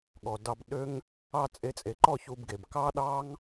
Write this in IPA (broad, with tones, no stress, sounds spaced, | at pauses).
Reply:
ɠ ɔ˨ d ɑ˧ b ɗ ø˦ ŋ | ɑ˧ t͡sʼ e˧ t͡sʼ e˨ ǃ ɔ˦˨ ç u˧ b ɡ e˨ b k ɑ˦ ɗ ɑ˦ ŋ